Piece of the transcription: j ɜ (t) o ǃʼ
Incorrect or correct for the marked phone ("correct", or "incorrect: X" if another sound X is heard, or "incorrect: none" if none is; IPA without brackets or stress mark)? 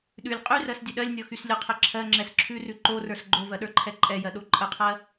incorrect: ɗ